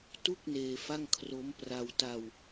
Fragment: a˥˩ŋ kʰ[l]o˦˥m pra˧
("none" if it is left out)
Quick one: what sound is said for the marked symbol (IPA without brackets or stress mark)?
r